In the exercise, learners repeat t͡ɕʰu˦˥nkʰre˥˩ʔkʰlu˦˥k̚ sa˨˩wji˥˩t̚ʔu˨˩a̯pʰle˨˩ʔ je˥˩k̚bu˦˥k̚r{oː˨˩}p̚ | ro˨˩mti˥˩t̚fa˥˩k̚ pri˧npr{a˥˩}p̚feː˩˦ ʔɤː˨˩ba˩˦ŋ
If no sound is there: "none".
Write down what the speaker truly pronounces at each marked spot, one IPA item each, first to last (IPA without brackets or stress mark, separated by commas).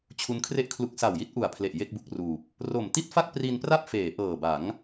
uː˨˩, a˥˩